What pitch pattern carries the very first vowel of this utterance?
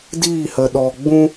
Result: falling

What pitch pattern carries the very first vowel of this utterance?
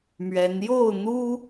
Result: rising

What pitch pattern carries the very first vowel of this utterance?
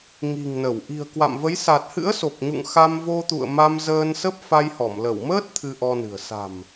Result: low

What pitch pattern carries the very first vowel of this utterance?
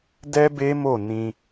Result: high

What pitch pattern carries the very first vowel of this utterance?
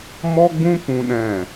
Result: high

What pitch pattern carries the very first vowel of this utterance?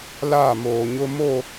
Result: falling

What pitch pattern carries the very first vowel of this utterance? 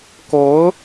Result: rising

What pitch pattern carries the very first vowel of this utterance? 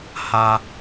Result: high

